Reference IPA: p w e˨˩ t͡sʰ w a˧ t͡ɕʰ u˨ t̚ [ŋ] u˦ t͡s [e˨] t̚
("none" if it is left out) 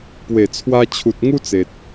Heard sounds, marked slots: ŋ, e˨

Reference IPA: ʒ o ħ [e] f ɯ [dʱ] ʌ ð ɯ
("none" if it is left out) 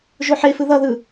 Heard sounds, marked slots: e, ð

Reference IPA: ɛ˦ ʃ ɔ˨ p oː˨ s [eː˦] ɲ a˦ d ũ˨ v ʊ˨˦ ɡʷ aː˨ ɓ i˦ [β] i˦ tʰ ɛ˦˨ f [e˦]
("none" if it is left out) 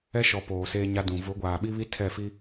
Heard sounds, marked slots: eː˦, β, i˦

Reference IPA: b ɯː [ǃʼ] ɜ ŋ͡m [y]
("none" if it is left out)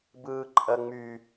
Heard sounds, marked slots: ǃʼ, y

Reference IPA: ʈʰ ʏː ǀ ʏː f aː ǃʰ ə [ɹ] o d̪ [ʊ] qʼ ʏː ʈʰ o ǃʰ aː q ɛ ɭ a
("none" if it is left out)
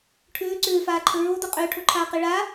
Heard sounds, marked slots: ɹ, ʊ

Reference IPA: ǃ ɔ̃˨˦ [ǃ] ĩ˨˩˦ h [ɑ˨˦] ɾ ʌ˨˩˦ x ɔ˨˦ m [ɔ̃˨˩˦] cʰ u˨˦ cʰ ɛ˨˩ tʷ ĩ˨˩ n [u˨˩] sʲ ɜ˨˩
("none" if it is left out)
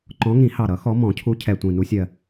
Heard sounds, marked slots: ŋ, ɑ˨˩, ɔ̃˨˩˦, u˨˦

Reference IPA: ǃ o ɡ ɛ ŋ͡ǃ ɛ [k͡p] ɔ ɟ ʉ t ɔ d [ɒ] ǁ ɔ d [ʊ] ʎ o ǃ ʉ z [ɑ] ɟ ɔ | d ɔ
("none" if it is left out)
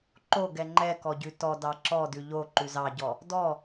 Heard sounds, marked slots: k, ɑ, ʉ, ɑ

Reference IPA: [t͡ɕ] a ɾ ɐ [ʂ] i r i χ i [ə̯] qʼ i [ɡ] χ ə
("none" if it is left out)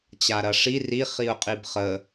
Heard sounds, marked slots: t͡ɕ, ʂ, ʊ̯, b

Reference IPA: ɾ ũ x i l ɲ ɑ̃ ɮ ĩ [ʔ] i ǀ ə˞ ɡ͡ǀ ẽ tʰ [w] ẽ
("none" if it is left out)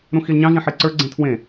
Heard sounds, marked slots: ħ, w

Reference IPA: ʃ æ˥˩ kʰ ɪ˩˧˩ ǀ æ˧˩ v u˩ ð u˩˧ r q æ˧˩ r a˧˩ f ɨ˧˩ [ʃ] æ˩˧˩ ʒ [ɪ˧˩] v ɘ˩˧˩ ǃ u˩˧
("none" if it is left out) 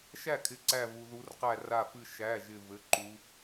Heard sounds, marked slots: ʃ, ɪ˧˩

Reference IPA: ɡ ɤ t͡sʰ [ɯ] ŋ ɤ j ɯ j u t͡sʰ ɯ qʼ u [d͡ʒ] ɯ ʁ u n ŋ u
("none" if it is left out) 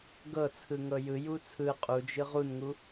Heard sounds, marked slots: ɯ, d͡ʒ

